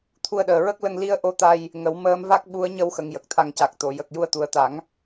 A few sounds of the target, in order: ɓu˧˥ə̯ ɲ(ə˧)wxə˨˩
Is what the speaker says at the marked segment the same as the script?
yes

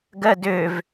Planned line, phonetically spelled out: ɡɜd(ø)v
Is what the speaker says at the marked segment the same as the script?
yes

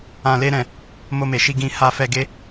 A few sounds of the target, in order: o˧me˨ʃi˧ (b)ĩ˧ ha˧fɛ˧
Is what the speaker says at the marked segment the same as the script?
no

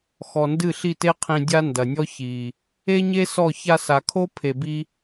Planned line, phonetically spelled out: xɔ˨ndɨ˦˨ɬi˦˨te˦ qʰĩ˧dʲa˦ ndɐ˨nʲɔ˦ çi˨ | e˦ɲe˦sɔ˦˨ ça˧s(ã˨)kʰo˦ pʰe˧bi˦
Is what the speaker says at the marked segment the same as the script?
no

